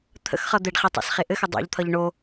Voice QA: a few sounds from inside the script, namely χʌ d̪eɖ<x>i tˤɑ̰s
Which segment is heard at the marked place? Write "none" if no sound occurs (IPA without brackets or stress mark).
χ